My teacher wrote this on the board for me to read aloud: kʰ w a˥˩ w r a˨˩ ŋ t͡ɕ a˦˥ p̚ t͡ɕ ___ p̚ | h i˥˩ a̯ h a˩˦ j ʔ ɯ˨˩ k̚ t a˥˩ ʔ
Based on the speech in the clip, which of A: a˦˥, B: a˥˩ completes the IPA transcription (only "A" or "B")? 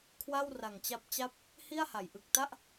B